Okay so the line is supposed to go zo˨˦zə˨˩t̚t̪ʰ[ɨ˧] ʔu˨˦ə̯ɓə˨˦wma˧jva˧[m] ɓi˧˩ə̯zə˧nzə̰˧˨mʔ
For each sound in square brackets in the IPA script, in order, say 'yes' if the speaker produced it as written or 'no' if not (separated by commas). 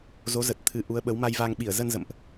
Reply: no, no